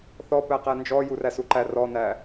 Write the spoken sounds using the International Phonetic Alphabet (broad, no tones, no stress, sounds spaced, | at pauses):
θ ɔ p æ q æ n d͡ʒ ɔ j u r æ s u ǃ æ r ɔ n æ